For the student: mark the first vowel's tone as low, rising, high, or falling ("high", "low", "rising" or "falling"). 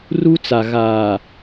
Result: high